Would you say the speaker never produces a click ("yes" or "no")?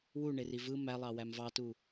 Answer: yes